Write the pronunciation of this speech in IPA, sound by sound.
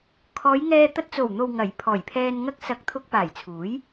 kʰ ɔː˨˧ j ŋ ɛː˧ t̪ ɐ˧ t̚ t͡s o˨˩ w n̪ o˨ w ŋ ɐ˨˩ j pʰ ɔː˨˩ j pʰ ɛː˧ n ŋ ɐ˧ k̚ s ɐ˨˥ k̚ t̪ʰ ʊ˧ k̚ p aː˨˩ j t͡sʰ uː˨˥ j

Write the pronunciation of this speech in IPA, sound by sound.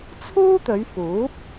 t͡sʰ uː˥ t̪ ɵ˨˧ ɥ f uː˨˥ p̚

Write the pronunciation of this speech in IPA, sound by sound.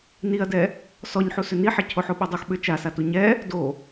n i ɐ̯ d ɛ | s ɔ ɲ ħ u s ʏ n i ħ i cʰ o ħ o ɓ o dˤ u x ɓ ʏ t͡ʃ a s a t u ɲ ɛ | d o

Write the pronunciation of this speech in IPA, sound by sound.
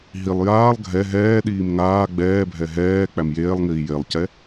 ɦ i lˠ j aː lˠ ɡʱ ɛ ɦ ɛː ɗ iː m ŋ aː ɡ͡b ɛː bʱ ɛ ɦ ɛː k͡p æ m j eː lˠ ŋ iː j e lˠ c ɛ

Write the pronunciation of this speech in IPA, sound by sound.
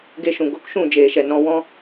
ɡ e˧ ʃ ũ˨ ɡ o˧ k ʃ ũ˦˨ d͡ʒ eː˨ ʃ ɛ˨ n ɔ̃˧ w ɔ̃˦

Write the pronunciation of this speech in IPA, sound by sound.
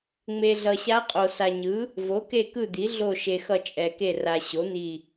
ŋ͡m e˨ ɮ ʌ˨ ɕ a˧˥ qʼ o˨ s a˨ ɲ ɯ˩˥ | v o˩˥ k e˦˨ k ɯ˦˨ d̪ i˩˥ ɮ o˦˨ ʃ e˨ x ʌ˦˨ t͡ʃʼ ɛ˨ k e˦˨ r a˨ ɕ o˩˥ n̪ i˦˨

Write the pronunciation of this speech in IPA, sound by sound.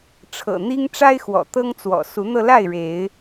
ʈ͡ʂʰ ɤ̰˨˩ n̪ i˦ ŋ ʈ͡ʂ a˦ ɪ̯ x w ɔ̰˨˩ t̪ ɤ˦ ŋ t͡s w ɔ̰˨˩ s u˨˦ n̪ ɤ˧ l a˥˨ ɪ̯ ɻ e˨˦ ɪ̯

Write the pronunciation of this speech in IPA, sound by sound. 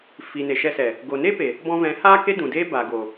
f i˨ n e˨ ʃ ɛ˧ s ɛ˨ | ɡ o˨ n e˦ p e˨ | b ɔ̃˧ v ɛ̃˨˦ h aː˦ k e˦ d ũ˨ d eː˦ b a˨ ɡ o˨

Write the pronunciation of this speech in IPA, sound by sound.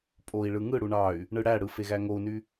pʼ o i̯ ɭ ɯ ŋ ɯ ɽ u ɳ ɑ y̯ | ɳ ɯ ɽ æ ɽ ɯ f e ɣ æ ŋ o u̯ n y

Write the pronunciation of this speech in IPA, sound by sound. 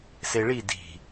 s e ɭ i d i̤

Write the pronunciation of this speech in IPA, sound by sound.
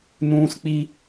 n ũː˦ s k͡p i˦

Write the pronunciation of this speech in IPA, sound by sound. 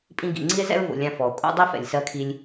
pʼ ĩ˦ ɡ ḭ˩ ŋ͡ǀ i˥ e̯ z ɛ̰˥ ɹ v o̰˩ lʲ ã˦ f ɔ˩ o̯ kʼ o̰˥ dˤ i˥ f ɛ̰˩ lʲ s ɜ˥ kʰ i˦ lʲ

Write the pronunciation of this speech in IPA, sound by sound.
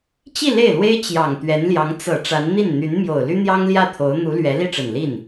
t͡ɕ i˥˧ l e˥˩ ɪ̯ l w e˥ ɪ̯ t͡ɕ j ɑ˨˩ ŋ t̪ ɥ ɛ˧˥ n l j ɑ˧˥ ŋ t͡s ɤ˨˩ ʈ͡ʂ a˧˥ n n̪ i˥˩ n n̪ y˧˥ n m j o˨˩ ʊ̯ l y˥ n̪ j ɑ˥ ŋ l j ä˥˩ t̪ʰ o˧˥ ʊ̯ n̪ u˧˥ l ɥ ɛ˧˥ l i˥˩ ʈ͡ʂ ə˨˩ n l i˥˩ n

